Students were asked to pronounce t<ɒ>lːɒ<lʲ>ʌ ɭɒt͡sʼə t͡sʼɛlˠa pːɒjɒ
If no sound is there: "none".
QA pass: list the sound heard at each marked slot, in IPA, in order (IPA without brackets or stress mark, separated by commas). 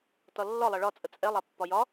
ɒ, lˠ